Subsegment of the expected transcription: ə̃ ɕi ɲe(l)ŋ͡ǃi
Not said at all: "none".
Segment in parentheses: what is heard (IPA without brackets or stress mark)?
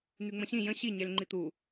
l